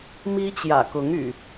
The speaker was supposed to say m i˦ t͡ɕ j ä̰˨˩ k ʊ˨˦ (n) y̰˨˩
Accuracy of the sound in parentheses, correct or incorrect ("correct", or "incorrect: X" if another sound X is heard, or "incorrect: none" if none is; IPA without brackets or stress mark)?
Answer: incorrect: ŋ